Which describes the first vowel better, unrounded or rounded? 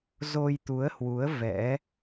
rounded